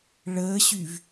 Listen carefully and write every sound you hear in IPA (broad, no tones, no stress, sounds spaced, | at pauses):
ɭ əː ɕ y v